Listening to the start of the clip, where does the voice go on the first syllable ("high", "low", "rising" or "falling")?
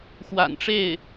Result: low